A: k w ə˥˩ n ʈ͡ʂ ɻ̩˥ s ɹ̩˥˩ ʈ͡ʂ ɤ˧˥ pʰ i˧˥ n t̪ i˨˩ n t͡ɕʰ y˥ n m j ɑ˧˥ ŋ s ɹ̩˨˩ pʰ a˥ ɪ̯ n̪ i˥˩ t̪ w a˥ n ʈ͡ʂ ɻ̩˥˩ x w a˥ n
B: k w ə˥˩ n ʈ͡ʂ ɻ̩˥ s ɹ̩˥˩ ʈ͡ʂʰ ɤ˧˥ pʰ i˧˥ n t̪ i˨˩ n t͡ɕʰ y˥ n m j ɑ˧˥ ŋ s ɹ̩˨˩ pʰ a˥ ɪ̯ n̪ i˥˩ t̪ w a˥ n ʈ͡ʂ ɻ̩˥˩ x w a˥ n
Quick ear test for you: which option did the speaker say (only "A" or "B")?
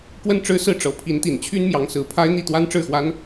A